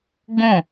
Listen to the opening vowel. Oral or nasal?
nasal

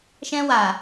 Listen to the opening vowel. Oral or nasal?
nasal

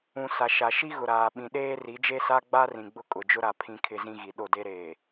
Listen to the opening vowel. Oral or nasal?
nasal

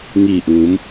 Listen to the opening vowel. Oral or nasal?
oral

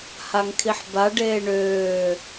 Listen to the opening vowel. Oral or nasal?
oral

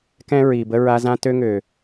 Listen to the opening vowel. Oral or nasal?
nasal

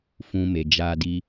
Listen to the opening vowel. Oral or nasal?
nasal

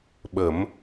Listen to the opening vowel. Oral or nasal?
oral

